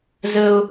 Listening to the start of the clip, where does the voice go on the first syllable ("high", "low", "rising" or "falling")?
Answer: high